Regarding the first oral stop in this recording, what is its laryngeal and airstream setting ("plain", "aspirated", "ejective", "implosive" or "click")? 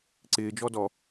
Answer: click